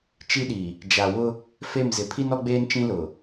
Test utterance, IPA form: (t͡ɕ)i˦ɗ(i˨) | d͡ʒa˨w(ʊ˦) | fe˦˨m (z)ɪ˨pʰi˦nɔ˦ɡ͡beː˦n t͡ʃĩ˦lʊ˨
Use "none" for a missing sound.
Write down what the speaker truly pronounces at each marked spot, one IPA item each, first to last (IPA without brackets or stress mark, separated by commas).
t͡ʃ, i˨, ʊ˦, z